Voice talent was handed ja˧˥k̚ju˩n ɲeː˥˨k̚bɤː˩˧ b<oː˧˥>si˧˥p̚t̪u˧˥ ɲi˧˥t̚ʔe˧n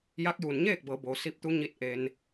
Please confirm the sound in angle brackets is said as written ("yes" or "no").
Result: no